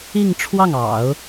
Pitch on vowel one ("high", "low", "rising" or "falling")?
falling